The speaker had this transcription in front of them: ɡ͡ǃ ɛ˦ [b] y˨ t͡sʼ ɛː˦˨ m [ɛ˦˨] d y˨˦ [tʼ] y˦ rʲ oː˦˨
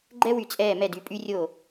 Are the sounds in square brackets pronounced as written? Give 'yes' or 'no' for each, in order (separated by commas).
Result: no, yes, no